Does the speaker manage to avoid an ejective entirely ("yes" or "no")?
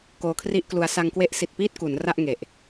yes